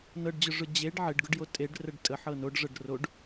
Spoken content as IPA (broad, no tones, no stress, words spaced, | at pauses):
nɤɖd͡ʑʊʐʊ d͡ʑeɖ ʕɪɖɡʊɖjo tʼeɖrəɖ tʼəħɤ noɖʐɤɖ roɖ